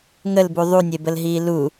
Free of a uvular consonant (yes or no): yes